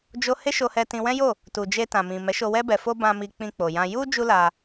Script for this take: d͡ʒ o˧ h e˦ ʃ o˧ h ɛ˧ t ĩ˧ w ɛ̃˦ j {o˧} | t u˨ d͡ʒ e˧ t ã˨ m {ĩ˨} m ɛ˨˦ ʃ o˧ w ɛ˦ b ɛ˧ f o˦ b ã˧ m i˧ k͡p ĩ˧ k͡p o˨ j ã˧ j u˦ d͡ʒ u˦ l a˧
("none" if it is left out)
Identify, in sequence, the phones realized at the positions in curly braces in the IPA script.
o˦˨, ĩ˨

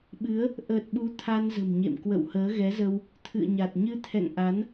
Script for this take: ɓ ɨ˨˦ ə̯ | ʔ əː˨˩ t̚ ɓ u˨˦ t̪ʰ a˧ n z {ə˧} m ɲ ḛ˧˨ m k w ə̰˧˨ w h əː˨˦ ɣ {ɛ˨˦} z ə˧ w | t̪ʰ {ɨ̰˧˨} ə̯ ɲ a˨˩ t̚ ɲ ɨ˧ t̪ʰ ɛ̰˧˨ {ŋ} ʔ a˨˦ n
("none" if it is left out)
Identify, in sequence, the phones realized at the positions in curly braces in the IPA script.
ə̤˨˩, ɛ˨˦, ɨ̰˧˨, ŋ

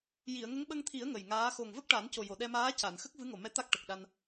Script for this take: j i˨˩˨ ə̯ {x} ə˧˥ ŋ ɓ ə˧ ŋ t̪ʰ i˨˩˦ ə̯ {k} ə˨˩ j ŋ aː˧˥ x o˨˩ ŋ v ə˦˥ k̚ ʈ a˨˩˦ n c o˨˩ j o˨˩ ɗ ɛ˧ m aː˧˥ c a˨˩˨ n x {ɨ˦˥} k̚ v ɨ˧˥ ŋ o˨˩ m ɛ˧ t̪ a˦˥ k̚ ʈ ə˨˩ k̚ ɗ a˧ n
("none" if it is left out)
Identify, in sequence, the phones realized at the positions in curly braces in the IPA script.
ŋ, ŋ, ə˦˥

